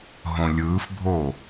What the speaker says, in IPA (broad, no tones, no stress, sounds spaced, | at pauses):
ɦ õ lʲ ɯː f bʱ o